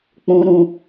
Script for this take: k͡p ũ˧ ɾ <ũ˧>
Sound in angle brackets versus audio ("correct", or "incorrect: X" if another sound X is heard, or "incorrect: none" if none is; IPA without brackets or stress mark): correct